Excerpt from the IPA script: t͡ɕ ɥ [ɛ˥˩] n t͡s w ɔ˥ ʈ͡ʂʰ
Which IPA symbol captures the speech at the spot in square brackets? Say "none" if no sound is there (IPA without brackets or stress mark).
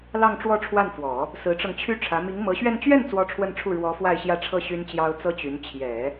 ɛ˥˩